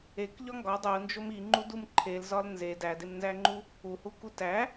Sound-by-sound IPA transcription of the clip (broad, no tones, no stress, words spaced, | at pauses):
ekʎɒ ŋɡɒ dˤund͡ʒom iŋ͡ǃudum ǃʰelzɒl nze dædemnzæŋ͡ǃu | uhuku tæ